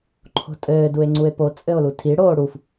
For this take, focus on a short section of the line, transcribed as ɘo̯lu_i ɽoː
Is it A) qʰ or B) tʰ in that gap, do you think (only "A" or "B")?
B